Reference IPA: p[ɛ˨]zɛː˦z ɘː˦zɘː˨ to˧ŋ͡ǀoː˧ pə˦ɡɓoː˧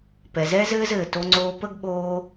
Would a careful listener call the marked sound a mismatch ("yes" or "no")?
no